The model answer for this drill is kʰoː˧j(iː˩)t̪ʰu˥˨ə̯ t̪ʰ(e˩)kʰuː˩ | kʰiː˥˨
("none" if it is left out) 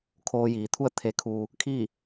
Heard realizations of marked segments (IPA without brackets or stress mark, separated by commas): iː˩, e˩